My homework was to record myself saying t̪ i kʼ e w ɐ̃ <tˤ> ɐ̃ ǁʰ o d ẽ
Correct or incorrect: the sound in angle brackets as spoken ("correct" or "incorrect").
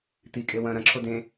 incorrect